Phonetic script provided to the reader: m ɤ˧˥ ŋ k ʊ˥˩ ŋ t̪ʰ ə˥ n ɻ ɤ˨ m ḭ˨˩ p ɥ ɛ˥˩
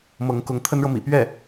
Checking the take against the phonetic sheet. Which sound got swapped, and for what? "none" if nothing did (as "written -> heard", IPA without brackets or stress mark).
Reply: ʊ˥˩ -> ʊ˧˥